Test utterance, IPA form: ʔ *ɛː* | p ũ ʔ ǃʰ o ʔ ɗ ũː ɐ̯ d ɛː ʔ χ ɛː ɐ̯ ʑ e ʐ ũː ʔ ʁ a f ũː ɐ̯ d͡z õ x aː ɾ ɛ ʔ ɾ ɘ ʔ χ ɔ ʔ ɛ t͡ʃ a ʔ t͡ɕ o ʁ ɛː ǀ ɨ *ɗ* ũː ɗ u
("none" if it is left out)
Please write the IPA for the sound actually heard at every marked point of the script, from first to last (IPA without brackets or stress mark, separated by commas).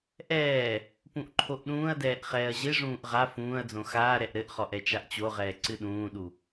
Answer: ɛː, ɗ